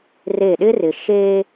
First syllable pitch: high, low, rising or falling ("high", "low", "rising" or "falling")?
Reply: falling